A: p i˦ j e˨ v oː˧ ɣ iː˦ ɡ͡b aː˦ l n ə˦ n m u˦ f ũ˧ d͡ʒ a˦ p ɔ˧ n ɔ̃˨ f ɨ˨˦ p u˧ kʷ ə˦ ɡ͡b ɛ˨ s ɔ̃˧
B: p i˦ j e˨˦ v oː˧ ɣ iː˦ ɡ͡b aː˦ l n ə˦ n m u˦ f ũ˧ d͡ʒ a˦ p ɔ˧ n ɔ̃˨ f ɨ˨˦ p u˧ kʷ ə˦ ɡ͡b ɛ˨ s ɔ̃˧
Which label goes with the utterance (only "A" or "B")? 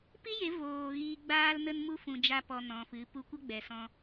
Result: B